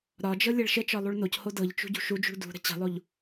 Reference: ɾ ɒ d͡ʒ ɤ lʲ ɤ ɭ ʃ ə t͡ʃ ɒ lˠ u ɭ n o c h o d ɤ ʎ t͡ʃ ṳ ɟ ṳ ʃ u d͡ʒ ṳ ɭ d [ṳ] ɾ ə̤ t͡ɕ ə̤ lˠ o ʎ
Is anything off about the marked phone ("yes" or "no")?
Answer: no